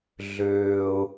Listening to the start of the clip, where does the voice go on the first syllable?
low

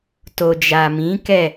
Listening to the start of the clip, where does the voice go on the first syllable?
low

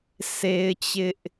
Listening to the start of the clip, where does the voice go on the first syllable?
high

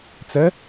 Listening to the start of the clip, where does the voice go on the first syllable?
rising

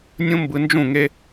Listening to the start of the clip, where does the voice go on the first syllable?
high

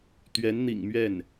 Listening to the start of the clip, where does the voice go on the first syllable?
rising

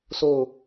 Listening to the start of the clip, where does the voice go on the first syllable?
falling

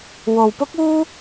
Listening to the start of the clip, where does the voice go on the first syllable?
low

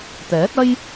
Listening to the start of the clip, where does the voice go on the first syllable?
rising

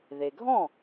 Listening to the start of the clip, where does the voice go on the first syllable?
low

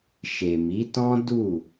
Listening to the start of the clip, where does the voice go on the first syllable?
low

